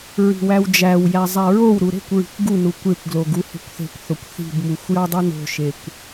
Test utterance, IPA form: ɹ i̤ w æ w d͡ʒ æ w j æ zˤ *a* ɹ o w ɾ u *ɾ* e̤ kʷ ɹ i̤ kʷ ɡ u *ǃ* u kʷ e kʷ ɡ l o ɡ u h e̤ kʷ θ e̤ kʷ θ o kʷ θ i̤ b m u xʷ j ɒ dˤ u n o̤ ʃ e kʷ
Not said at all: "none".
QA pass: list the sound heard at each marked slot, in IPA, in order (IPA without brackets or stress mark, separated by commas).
æ, ɾ, n